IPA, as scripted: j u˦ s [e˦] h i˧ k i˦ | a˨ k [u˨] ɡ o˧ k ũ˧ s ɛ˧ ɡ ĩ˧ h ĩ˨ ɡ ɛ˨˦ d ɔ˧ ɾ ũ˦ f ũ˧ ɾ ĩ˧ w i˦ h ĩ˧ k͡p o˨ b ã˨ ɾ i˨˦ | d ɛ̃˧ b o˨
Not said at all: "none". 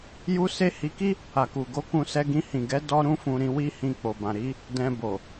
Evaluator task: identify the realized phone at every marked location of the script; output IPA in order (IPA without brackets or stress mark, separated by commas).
e˦, u˨